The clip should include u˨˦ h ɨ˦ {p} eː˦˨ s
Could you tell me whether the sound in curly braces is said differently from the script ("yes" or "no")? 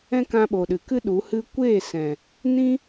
yes